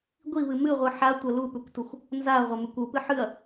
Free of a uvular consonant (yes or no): no